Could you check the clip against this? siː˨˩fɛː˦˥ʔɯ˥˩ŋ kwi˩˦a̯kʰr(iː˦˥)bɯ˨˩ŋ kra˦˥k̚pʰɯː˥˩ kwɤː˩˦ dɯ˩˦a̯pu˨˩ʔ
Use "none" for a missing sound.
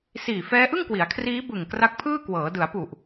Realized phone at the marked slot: iː˦˥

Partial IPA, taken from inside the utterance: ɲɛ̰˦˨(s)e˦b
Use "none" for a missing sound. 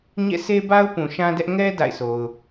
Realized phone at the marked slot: s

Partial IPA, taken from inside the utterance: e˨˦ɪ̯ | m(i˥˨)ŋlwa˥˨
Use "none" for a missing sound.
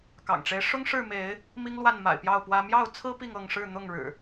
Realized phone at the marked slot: i˦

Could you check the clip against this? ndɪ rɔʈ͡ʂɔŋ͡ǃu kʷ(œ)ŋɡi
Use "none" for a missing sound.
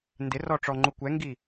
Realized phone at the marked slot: ɛ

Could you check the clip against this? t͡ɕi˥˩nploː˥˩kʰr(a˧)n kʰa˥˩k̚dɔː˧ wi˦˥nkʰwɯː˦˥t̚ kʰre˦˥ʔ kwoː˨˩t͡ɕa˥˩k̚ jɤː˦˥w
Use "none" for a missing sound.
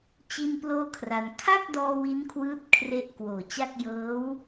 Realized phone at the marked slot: a˧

